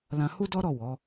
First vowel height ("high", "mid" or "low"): low